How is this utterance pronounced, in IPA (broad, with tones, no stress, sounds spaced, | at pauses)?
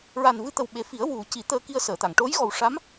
ɹ a˨˩ n v ɨ˧ t̪ ə˨˩ w ɓ e˨˩ f i˨˩˦ ə̯ w u˨˩˦ c i˨˩˦ t̪ əː˧ k i˧ ə̯ s əː˨˩˨ t̪ a˨˩˨ ŋ ʈ o˧˥ j ɣ ɔ˨˩ w ʂ a˧˥ m